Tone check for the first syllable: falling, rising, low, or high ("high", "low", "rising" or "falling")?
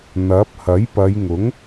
rising